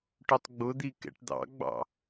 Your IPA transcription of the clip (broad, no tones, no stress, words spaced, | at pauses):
ʈʊtˤɡ͡bʊd̪i kɛ̰ʈd̪ɑ̰ɡ͡bɑ̰